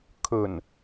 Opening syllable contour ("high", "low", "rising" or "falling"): low